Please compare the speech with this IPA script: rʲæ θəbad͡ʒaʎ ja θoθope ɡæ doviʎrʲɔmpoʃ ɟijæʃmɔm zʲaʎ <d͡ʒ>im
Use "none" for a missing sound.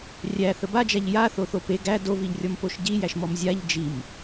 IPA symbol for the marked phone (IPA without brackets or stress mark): d͡ʒ